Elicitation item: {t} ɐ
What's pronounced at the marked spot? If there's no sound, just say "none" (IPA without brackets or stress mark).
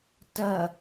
t